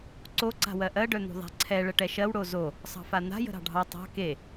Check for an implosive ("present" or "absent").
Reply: absent